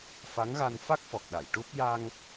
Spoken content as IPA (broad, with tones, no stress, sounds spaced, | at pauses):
f a˧˥ ŋ ɣ a˧ n f a˦˥ k̚ f ɔ˨˩ k̚ ɗ a˨˩˨ j ʈ u˦˥ p̚ j a˧ ŋ